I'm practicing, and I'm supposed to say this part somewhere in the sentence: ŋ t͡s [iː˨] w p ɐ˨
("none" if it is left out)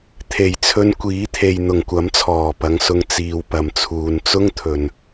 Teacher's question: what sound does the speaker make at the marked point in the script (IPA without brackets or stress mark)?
iː˨